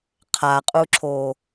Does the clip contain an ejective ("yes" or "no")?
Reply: yes